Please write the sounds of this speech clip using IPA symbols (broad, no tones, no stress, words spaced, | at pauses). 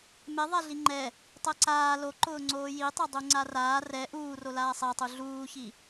meðˤɛ ɮiŋ͡ǃɛ | tˤɛǀaː loǃʊːŋ͡ǀoː jitˤɛdˤu ŋ͡ǀaraː rɛ ʔuːro laːsˤɛtˤu ɮuːçi